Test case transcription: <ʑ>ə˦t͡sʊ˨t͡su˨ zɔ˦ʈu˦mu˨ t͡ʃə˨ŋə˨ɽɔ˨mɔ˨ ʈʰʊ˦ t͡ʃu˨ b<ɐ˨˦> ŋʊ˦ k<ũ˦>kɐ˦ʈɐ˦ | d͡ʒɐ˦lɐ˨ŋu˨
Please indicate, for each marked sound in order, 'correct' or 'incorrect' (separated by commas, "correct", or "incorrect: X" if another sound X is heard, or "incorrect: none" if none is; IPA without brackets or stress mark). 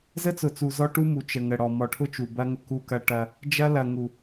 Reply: incorrect: z, incorrect: ɐ˦, incorrect: u˦